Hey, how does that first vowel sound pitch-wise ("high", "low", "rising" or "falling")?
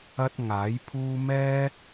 high